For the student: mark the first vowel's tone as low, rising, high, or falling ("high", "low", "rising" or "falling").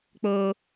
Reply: high